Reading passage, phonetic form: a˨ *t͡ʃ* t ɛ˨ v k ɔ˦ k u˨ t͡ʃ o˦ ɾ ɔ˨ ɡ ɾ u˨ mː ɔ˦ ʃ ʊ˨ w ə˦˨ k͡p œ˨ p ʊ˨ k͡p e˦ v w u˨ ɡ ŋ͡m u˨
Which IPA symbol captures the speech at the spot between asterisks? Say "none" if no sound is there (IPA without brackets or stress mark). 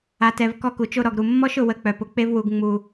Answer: none